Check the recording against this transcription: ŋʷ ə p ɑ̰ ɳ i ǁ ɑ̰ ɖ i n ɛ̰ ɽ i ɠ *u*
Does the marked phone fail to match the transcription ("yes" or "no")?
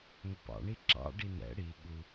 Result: no